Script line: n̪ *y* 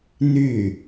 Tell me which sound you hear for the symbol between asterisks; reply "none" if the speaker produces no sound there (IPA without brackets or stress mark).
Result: y